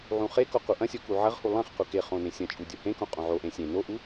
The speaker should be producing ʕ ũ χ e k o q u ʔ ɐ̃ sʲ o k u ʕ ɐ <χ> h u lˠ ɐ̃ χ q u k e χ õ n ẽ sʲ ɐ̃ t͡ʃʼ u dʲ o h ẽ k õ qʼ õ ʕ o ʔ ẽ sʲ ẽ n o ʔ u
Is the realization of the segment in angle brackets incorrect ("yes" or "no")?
yes